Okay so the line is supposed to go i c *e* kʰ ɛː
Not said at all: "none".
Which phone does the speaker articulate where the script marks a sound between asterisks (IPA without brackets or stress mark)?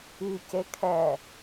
e